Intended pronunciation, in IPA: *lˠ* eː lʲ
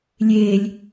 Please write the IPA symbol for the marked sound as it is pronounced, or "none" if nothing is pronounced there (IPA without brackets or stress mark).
lʲ